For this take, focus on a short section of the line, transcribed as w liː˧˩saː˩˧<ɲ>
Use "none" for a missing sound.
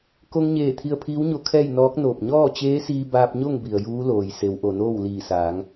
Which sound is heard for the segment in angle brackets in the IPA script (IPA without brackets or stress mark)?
ŋ